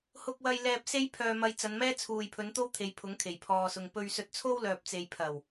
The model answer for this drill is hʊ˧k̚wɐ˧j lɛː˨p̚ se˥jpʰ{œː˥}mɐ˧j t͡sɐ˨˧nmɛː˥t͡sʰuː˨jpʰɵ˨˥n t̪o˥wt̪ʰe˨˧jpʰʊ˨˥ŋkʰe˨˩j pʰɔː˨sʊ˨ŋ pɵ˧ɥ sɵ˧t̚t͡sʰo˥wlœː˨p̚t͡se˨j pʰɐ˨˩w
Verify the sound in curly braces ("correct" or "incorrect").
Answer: incorrect